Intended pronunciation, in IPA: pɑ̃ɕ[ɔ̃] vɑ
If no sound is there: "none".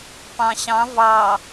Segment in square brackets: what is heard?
ɑ̃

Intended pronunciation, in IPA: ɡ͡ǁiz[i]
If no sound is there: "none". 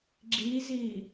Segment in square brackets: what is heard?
i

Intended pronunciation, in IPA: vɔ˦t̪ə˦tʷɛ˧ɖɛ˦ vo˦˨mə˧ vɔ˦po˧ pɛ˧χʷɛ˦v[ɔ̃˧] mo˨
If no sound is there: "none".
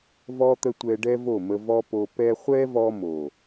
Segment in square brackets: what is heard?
ɔ˧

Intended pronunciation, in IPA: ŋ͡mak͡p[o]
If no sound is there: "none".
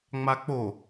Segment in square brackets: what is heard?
o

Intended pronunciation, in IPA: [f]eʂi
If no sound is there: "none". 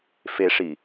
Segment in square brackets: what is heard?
f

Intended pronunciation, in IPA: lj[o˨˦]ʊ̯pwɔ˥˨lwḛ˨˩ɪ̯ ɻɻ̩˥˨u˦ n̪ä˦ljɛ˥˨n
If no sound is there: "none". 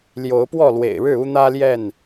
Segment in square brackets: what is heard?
o˨˦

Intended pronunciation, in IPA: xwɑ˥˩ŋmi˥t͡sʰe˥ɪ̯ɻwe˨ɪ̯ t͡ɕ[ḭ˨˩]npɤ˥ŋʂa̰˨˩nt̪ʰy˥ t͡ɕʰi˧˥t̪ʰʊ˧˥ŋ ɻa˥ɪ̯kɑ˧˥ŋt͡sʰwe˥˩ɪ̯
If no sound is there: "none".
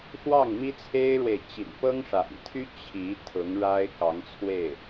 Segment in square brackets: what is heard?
ḭ˨˩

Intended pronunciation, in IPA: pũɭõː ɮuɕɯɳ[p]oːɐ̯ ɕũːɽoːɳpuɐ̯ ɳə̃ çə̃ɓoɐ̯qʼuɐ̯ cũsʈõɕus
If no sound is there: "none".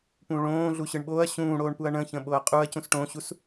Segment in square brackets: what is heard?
ɓ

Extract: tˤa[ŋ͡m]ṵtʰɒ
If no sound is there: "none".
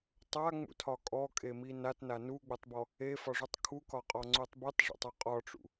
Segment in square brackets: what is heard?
ŋ͡m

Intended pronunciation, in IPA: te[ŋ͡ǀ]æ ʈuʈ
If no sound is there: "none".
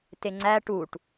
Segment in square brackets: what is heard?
ŋ͡ǀ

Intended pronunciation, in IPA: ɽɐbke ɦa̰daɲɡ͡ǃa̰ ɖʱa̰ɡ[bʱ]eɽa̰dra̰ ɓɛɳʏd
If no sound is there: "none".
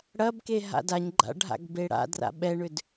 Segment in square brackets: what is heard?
b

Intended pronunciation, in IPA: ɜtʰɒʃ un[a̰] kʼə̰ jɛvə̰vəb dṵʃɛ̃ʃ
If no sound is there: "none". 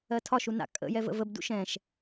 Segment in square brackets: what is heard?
a̰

